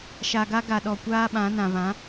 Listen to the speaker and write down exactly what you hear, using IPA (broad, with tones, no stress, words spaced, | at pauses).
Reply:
ʃa˨ɡa˦ ɡa˨ɗɔ˨kʷaː˦ ɓã˨˦nã˨ βã˨˦